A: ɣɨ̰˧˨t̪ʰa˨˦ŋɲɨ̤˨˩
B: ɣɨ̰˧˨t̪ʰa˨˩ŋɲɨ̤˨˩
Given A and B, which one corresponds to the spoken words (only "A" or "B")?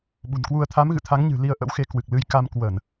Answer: A